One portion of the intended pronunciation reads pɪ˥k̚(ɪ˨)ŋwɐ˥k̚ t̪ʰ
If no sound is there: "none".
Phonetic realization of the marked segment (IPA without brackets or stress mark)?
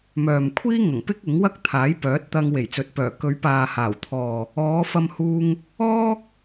ɪ˨˥